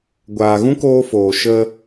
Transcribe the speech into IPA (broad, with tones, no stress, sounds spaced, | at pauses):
ɡʷ aː˨ ɣ ũ˦ k oː˧ f oː˨ ʃ ə˧